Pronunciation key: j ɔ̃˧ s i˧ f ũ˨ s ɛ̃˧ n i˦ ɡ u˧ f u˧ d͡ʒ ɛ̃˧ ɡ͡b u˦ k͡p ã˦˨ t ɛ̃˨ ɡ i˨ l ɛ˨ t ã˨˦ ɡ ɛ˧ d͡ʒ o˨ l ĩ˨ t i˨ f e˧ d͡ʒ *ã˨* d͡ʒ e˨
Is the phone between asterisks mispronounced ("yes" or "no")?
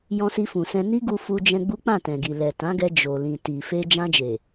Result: yes